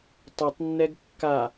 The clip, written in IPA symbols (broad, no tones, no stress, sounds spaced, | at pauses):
tˤ ɐ tˤ nː ɛ ɡ kː a